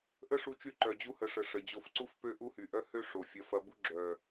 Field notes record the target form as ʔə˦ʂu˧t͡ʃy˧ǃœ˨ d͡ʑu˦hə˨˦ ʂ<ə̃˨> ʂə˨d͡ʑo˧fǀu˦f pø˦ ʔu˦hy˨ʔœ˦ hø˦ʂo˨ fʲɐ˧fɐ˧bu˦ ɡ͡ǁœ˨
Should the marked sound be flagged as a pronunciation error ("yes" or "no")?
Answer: yes